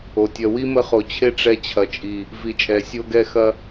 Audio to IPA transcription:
o˨ tʲ ɐ˧ w i˦ m ə˧ χ o˨ t͡ɕʰ e˦ ʈ͡ʂ ɛ˧ t͡ɕʰ ɐ˨ t͡ʃʼ i˨ | v i˨ t͡ʃʼ ɛ˨ sʲ o˧ ɡ ɛ˧ x ɐ˧

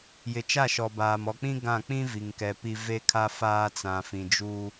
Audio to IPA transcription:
j ɪ˨ t͡ʃ a˦˨ ʃ ɔ˨ b aː˨ m ɔ˨ k͡p ĩ˦ ɡ ã˦˨ k͡p ĩ˦ v i˨ ŋ k ɛ˨ p i˦ v e˦ kʰ a˦ f aː˦ t͡s ã˨ f ĩ˨ d͡ʒ u˦

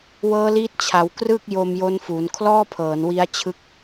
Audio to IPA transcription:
w ɤː˦˥ l iː˦˥ t̚ t͡ɕʰ a˩˦ w k r ɯ˥˩ k̚ j o˧ m j o˦˥ n f u˩˦ n kʰ l ɔː˥˩ pʰ ɤː˩˦ n w i˦˥ a̯ t͡ɕʰ ɯ˦˥ k̚

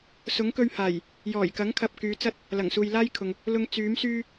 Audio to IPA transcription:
s ʊ˨˥ ŋ k ɵ˧ ɥ h aː˨˩ j | j ɔː˨˩ j k ɐ˨˥ ŋ kʰ ɐ˨ p̚ k yː˨˧ t͡s ɐ˥ t̚ | l ɐ˨˩ ŋ s uː˨ j l aː˥ j kʰ ʊ˨ ŋ | l ʊ˧ ŋ t͡s yː˨˥ m s yː˥

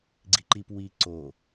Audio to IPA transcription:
ɡ͡ǀ i ǃ i p w i ǀ o

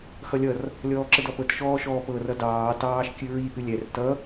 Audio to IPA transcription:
x ʌ lʲ ʌ r | lʲ ɔː ǁ ə d ɔ p ɤ t ʃ ɔː ʃ ɔː p ɤ r ʌ d ɑː t ɑː ʃ kʲ ɨ ɹ i ʔ ɨ lʲ ɛ r t ʌ

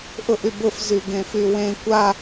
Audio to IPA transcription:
ʔ ʊ ʔ y b ʊ f z y ɡ ẽ f y w ẽ kʷ a

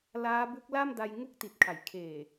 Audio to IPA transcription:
l aː˦˥ b u˦˥ k̚ l a˥˩ m d a˧ j ŋ u˦˥ k̚ t i˨˩ t̚ kʰ a˩˦ j kʰ eː˨˩

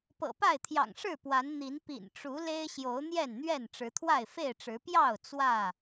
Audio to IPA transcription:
p ɤ̰˨˩ p a˥˨ ɪ̯ t̪ʰ j ɑ̰˨˩ ŋ ʂ ɻ̩˥˨ p w a˨˦ n n̪ i˨˦ n p ḭ˨˩ n ʈ͡ʂ u˨˦ l e˦ ɪ̯ ɕ j o˨˦ ʊ̯ n̪ j ɛ˥˨ n n̪ ɥ ɛ˥˨ n ʈ͡ʂ ɻ̩˨˦ t̪ʰ w a˥˨ ɪ̯ f e˥˨ ɪ̯ ʈ͡ʂ ɻ̩˨˦ p j ɑ˥˨ ʊ̯ t͡s w ä˥˨

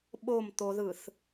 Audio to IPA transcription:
ɓ o m t̪ o ð ɯ θ

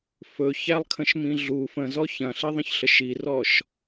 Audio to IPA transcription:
f ɵ ç æ lˠ kʰ ə̃ ʃ m ĩ ɮ u f ə̃ z ɔ ç ɐ̃ ɬ i ðˤ ə̃ ç ɬ ə ʃ i r ɔ ʃ

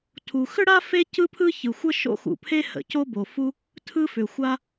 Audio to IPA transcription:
tʰ u˩ x ʏ˥ ɽ a˥ f e˥ c ɯ˥ pʰ ɯ˥ ç ɯ˩ xʷ ə˥ ʃ o̰˥ x ṵ˩ pʰ e˥ h ə̰˩ c o˥ b o˩ f u˥ | tʰ ɯ˥ f ʏ˩ xʷ a˥

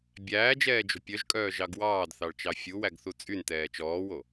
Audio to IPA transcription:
bʲ æː d͡ʒ ɛː d͡ʒ o̤ pʲ œ ʒ kʼ œː ʒ ɑ ɡ w ɑː d θ ɑ ɭ t͡ʃ ɑ fʲ u w æ ɡ θ u t͡sʼ y n t ɛː t͡ʃ ɔː w o

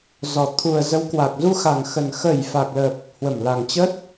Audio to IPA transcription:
z ɔ˨˩ t̪ʰ u˨˩ ə̯ z ə˨˦ w k w a˨˩ k̚ z u˧ x a˨˩ ŋ x ə˨˩ n x ə˧˩ j f a˨˩ k̚ l ə˨˩ p̚ | h w ə˧˩ m l a˨˩ ŋ t͡ɕ ə˦˥ t̚

